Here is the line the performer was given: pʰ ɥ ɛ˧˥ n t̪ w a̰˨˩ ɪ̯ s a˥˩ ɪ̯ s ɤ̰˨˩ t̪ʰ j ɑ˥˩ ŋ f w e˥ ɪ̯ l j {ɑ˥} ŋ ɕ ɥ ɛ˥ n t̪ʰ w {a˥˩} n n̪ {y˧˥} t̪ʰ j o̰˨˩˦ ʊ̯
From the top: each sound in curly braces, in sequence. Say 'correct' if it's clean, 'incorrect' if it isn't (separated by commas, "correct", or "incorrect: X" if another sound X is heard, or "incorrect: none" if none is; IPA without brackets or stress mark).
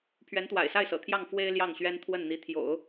incorrect: ɑ˥˩, incorrect: ə˥˩, incorrect: i˧˥